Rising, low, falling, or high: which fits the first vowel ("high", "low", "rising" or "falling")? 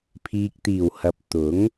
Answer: low